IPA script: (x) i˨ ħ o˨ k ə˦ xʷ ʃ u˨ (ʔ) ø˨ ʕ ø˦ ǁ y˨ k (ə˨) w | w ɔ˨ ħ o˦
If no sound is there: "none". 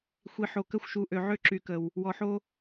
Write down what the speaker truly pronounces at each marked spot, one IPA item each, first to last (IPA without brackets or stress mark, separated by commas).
xʷ, ʔ, ə˨